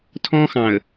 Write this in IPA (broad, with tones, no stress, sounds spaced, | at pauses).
tʰ ɔ̃˦ x ɑ̃˨ ə̯